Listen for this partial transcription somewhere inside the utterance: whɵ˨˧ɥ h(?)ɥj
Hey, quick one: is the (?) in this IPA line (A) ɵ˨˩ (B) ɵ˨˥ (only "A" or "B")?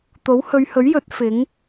B